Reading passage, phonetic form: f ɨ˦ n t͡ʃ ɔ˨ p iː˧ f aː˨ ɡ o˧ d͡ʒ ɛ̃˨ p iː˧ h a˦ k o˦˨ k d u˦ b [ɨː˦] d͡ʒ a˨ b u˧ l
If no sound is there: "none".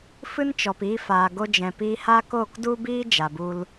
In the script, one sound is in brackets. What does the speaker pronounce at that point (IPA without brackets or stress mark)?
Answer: iː˦